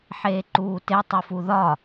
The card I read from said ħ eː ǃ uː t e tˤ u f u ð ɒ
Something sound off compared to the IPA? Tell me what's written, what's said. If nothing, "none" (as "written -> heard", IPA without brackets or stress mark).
none